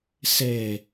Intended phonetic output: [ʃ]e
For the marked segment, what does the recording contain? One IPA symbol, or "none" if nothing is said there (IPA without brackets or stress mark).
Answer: s